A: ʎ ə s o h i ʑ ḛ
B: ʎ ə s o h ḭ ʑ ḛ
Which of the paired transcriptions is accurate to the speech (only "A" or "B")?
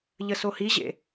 A